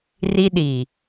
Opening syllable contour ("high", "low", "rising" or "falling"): high